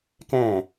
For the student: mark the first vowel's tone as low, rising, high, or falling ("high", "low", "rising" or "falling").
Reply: falling